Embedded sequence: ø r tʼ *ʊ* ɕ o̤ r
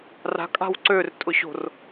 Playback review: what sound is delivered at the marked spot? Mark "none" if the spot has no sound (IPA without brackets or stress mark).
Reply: ʊ